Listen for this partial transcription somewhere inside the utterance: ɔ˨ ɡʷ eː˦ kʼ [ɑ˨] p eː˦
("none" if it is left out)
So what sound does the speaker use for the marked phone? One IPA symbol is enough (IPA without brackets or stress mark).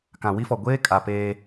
a˨